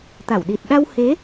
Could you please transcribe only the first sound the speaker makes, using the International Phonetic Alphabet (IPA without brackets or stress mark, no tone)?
t̪